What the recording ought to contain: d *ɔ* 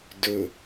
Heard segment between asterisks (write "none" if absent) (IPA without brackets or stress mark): ɵ